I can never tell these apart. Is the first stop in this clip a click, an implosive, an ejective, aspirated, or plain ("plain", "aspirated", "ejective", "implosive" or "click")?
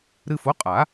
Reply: ejective